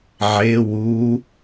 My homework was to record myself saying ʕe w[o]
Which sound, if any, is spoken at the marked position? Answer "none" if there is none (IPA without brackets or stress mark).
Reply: u